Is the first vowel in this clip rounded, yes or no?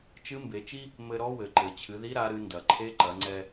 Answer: no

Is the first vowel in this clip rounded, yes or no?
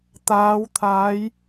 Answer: no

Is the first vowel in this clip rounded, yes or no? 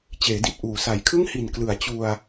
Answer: no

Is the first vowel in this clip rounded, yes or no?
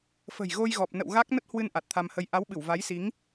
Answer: no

